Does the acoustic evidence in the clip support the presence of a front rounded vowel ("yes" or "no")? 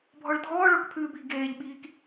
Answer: no